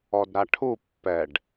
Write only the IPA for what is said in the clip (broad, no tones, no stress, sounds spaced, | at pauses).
ɔ d ɾ a ʈʰ u pː ɛ ɖ